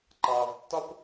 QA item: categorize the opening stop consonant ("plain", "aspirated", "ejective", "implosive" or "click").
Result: click